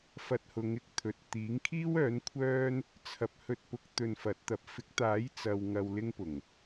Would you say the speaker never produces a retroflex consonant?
yes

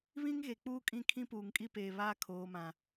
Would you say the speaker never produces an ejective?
no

